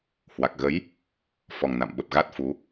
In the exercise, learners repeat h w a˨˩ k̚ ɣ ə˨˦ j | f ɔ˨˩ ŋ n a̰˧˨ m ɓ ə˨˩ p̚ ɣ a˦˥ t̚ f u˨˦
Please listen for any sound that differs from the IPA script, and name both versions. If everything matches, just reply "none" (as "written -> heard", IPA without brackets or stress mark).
none